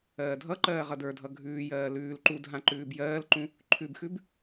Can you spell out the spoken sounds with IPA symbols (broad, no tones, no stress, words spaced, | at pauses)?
ɜːdʱʌǃɜː ʁʌdə˞dʱʌ ɡʱʉːjɜː lʉːl ǃudɦã ǃʉːbjɜːlǃũ | ǃʰʉbxʉb